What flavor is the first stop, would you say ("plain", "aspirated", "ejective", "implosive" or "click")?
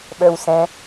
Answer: implosive